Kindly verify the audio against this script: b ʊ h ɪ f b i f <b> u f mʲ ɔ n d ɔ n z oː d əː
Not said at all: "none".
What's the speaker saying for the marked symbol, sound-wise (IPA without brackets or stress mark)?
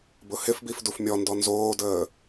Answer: d